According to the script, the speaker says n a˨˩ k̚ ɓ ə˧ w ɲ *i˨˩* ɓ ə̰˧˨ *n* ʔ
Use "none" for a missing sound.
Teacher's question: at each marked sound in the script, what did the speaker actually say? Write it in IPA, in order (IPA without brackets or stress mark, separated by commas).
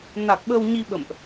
i˧, m